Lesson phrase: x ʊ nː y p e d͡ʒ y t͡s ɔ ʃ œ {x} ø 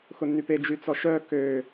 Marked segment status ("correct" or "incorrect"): incorrect